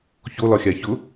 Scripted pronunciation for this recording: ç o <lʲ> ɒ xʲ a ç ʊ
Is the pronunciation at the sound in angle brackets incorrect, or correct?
incorrect